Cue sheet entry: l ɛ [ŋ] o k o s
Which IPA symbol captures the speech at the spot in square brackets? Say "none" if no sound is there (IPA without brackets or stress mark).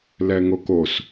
ŋ